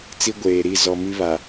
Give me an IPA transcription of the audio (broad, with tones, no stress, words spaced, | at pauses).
t͡si˦ɡʷeː˨ɾi˦˨ zɔ˨mi˦βa˨